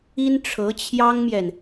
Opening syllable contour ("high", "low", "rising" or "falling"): high